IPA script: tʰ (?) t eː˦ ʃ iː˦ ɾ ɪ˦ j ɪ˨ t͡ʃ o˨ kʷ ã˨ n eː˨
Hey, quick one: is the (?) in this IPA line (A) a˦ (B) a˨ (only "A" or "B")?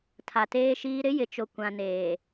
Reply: B